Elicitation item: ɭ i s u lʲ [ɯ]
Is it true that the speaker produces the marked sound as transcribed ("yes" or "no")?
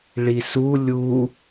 no